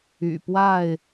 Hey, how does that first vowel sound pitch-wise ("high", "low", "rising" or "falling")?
low